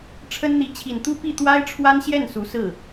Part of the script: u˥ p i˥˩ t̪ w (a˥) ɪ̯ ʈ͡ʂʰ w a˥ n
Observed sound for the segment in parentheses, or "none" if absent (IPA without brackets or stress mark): a˥